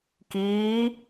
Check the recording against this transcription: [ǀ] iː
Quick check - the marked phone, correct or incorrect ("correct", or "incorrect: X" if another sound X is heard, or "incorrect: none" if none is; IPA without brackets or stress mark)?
incorrect: k